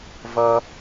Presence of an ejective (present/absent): absent